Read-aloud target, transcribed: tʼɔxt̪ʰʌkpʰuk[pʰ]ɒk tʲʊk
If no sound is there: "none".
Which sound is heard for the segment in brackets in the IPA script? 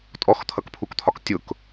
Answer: t̪ʰ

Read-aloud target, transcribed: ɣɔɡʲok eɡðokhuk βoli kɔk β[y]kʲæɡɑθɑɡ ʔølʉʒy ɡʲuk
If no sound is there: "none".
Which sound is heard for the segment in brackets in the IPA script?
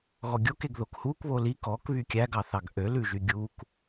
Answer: y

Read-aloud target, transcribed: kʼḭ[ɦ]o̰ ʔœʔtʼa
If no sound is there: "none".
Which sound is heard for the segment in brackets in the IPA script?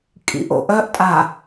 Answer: ʔ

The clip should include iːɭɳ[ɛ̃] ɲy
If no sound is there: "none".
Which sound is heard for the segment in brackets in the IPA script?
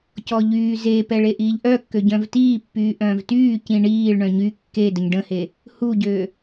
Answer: œ̃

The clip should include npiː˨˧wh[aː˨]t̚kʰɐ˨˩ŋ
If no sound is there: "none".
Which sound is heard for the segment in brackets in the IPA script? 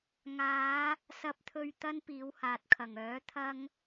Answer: aː˨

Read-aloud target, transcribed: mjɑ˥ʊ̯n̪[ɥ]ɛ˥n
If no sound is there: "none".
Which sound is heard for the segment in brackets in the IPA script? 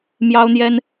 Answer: j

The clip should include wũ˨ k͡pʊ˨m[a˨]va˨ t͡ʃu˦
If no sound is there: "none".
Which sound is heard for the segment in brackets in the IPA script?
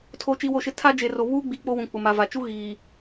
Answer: a˨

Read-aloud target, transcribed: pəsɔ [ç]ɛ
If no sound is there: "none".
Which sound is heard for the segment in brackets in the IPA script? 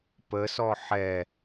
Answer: ħ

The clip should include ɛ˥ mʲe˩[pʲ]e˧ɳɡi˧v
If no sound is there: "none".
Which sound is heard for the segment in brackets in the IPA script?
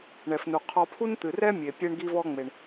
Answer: pʲ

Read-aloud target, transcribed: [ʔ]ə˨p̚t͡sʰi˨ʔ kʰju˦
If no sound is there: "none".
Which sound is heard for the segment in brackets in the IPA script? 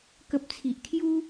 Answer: k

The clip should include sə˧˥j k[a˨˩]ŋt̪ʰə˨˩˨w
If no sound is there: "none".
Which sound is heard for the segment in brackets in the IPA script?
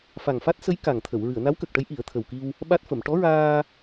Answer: a˨˩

